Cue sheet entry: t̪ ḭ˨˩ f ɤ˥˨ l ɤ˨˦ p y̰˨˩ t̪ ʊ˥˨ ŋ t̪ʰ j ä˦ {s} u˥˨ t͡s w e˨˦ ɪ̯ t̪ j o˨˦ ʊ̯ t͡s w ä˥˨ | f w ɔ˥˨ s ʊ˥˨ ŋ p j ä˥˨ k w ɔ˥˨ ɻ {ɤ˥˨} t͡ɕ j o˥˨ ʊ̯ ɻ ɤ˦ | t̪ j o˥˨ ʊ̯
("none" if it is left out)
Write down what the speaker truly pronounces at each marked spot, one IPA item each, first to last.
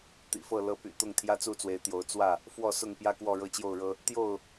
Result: t͡s, ɤ˥˨

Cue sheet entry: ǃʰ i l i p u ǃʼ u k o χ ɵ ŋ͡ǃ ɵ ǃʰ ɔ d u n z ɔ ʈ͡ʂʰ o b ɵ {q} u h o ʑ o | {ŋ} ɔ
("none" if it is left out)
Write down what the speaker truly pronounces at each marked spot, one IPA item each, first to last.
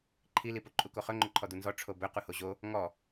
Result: q, ŋ

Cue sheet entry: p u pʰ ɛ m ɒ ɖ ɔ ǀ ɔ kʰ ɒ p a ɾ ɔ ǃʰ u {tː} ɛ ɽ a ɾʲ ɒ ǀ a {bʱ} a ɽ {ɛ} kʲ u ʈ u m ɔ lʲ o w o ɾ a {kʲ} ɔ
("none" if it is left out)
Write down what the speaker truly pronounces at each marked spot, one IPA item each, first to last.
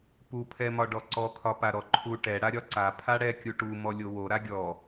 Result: ʈ, pʰ, ɛ, ɡʲ

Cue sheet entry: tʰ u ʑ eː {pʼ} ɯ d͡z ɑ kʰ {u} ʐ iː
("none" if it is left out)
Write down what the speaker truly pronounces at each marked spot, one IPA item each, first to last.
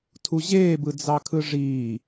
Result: b, ɯ

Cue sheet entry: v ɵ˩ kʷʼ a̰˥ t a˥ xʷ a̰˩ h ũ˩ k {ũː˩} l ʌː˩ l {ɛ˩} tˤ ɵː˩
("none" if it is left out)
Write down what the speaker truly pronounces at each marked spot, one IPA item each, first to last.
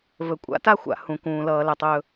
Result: ũː˩, ɛ˩

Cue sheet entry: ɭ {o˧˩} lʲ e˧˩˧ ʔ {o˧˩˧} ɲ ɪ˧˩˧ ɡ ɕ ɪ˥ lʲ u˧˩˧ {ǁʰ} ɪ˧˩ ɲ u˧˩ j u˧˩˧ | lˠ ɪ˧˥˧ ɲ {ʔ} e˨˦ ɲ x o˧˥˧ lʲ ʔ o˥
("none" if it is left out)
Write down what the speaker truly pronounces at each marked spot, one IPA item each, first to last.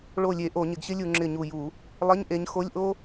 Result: o˧˩, o˧˩˧, ŋ͡ǁ, ʔ

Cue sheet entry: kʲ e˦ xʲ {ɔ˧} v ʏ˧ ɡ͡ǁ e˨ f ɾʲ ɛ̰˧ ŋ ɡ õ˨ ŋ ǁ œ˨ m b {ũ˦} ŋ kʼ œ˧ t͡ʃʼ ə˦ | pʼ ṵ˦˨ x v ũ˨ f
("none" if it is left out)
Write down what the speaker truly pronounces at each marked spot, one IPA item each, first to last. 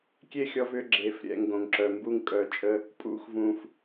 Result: ɔ˧, u˦

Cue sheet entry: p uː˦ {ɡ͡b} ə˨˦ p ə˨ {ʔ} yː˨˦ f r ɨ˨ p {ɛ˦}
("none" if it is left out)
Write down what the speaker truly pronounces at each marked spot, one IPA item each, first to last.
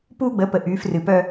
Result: ɡ͡b, ʔ, œ˦

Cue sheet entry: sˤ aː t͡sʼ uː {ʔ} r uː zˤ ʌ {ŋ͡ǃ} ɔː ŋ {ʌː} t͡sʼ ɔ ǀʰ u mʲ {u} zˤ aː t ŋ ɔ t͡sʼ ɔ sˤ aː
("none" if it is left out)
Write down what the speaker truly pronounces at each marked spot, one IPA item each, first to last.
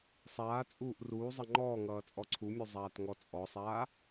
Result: ʔ, ŋ͡ǃ, ʌː, u

